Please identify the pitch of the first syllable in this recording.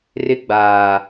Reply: high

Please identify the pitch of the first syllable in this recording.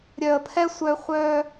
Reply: low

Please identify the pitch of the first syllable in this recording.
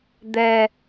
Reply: low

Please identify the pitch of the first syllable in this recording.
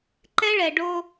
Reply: high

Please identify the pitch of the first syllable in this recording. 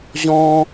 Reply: high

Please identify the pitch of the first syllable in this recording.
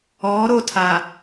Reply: rising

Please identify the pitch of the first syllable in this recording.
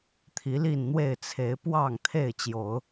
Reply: rising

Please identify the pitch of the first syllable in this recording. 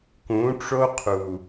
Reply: rising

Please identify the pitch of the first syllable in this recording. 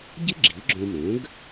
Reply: high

